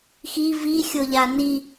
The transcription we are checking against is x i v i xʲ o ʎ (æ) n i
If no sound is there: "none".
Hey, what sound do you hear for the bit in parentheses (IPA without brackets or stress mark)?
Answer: a